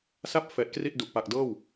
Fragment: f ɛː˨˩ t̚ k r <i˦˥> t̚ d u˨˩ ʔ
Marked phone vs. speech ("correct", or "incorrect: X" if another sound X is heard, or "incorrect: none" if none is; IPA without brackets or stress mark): incorrect: i˥˩